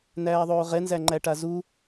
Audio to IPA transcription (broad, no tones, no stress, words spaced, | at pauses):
næːðˤoːʁɛnzæ ŋ͡ǃæʈazu